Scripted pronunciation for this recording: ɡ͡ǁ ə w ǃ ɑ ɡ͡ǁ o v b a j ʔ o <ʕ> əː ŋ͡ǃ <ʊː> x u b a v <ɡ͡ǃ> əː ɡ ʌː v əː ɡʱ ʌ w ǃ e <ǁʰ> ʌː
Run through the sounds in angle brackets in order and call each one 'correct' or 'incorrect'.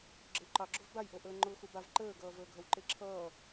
incorrect, correct, incorrect, correct

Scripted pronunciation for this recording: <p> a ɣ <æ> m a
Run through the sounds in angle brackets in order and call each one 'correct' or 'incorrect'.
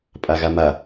incorrect, incorrect

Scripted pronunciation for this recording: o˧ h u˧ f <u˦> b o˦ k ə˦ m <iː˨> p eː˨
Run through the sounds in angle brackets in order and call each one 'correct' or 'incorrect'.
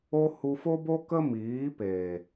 incorrect, incorrect

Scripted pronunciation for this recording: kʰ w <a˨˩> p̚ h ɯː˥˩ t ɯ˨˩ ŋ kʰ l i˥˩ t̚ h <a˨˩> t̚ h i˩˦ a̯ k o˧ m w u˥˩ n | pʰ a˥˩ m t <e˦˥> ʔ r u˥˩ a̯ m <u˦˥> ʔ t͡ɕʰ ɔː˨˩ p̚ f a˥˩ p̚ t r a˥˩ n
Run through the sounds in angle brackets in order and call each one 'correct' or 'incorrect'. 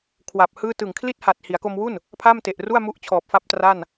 correct, correct, incorrect, correct

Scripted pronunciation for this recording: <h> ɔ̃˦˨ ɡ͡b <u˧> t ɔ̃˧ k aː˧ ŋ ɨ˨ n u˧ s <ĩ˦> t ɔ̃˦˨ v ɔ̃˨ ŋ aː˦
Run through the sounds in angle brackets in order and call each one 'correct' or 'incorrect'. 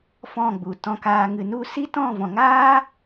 incorrect, incorrect, incorrect

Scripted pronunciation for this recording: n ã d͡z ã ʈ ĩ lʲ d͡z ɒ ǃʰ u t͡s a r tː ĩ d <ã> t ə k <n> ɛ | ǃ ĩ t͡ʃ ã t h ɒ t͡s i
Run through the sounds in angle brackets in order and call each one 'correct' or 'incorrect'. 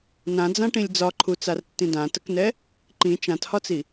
correct, correct

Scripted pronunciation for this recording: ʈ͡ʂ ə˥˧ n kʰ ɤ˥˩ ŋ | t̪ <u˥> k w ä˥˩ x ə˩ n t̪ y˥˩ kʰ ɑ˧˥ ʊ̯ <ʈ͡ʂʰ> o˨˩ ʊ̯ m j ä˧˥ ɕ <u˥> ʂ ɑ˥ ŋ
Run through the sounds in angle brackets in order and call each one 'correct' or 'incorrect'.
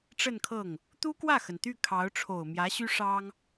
correct, correct, incorrect

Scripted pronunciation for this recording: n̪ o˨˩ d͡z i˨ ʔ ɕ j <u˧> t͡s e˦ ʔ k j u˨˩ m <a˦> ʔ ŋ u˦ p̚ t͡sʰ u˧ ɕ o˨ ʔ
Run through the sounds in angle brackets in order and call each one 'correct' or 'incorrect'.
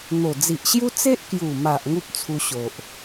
incorrect, incorrect

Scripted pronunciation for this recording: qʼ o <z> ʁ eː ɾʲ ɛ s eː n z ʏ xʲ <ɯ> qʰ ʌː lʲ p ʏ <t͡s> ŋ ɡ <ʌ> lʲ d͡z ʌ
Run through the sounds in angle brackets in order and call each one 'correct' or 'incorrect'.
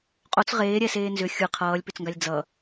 incorrect, correct, correct, incorrect

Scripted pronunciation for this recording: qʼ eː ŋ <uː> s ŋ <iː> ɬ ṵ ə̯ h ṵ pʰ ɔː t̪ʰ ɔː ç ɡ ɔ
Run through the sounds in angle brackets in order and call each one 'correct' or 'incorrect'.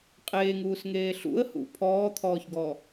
correct, incorrect

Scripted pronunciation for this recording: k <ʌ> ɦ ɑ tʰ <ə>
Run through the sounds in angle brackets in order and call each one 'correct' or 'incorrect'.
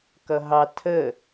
correct, correct

